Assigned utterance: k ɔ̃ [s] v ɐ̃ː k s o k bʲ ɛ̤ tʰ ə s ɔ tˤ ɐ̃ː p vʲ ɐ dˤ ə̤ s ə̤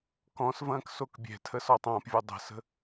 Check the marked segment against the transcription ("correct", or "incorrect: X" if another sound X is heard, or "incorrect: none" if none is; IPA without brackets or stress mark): correct